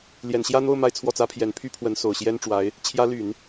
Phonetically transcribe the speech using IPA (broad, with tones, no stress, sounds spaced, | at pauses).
l j ɛ˨˩ n ɕ j ä˥˧ n̪ o˥˧ ʊ̯ m a˥˧ ɪ̯ t͡sʰ w ɔ˥˩ t͡s ä˥ pʰ j ɛ˧˥ n pʰ y˥ pʰ w ə˧˥ n s o˨˩ ʊ̯ ɕ j ɛ˥ n ʈ͡ʂ w a˧˥ ɪ̯ | t͡ɕʰ j ä˧˥ l y˨˩˦ n